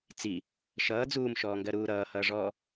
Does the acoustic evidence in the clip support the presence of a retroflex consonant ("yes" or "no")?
yes